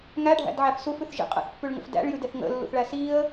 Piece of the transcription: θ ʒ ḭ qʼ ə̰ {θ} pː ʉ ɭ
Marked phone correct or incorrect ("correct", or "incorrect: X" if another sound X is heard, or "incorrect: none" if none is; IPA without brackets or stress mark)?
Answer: correct